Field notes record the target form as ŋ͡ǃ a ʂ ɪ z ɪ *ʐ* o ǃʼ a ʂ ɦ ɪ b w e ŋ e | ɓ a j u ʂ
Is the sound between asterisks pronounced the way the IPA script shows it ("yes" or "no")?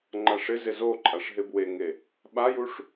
no